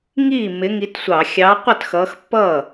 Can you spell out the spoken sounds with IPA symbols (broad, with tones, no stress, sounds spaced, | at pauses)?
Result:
ŋ iː˥˩ m ɪ˨˦ ŋ i˨˦ t sʷ ɑ˧˩˧ xʲ ɑ˨˦ qʷ ʌ˥˩ t x ʌː˨˦ x pː ʌː˥˩